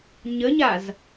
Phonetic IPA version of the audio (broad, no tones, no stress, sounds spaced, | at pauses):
ɲ ə ɲ a z